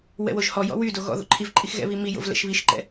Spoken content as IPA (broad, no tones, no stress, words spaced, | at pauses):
wɛ̰woʒhɔjɔ̰ wydo ɣɔ̰ ðo̰ǃʰivǃʼix ɣɛ̰βi mijo̰v lɛ̰ʃβiʃǃɛ̰